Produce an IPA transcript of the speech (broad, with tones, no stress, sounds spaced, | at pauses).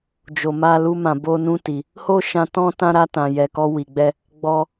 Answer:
d͡ʒ o˨ m a˧ l u˧ m ã˨ b o˧ n ũ˧ t i˨ | h o˦ ʃ ã˧ t ɔ̃˦ t ã˦ ɾ a˧ t ã˨ j ɛ˨ k ɔ˧ w i˨ ɡ͡b ɛ˧ | ɡ͡b ɔ˧